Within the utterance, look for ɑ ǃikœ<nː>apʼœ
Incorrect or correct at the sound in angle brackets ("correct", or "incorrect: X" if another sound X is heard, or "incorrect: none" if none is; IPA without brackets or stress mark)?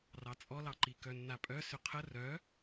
correct